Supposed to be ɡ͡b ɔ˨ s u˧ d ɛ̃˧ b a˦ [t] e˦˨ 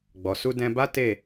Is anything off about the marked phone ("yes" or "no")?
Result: no